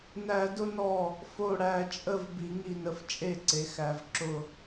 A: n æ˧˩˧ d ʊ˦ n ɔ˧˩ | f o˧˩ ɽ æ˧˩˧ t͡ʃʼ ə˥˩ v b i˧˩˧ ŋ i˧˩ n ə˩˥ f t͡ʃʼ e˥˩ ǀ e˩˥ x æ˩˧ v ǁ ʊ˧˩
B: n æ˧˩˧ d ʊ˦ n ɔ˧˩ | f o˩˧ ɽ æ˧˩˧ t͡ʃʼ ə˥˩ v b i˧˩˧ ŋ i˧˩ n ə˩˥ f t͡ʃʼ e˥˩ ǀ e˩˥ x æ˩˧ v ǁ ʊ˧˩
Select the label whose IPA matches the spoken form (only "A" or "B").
A